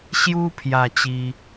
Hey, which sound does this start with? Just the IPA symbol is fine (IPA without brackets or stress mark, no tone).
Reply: ɕ